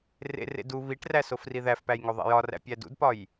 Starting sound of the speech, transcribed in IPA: r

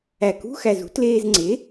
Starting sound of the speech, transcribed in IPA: æ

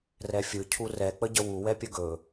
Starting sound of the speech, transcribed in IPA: r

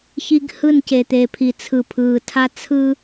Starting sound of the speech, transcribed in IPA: ç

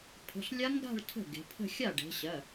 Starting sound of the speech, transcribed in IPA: pʰ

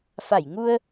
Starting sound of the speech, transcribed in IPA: f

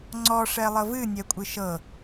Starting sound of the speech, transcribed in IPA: ŋ͡ǀ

